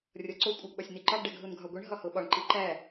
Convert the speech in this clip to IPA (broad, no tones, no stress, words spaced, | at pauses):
rʲɒǀo kʷʼæɡɓɒsʲniǃɒɡ ɖæɡɦunɡʱɒɡʷiɳ ɦɒhoɓɒɳ ǃiǃæ